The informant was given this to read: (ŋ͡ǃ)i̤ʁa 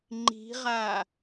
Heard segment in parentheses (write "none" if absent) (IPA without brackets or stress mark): ŋ͡ǃ